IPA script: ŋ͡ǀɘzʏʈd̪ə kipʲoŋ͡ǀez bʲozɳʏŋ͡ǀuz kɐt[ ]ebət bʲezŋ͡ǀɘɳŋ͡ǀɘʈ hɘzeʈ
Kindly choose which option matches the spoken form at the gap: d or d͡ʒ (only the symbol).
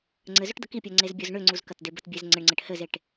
d